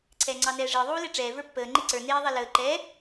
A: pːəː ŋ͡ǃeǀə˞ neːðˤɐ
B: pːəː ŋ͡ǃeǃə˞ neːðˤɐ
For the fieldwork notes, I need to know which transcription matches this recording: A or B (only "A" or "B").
A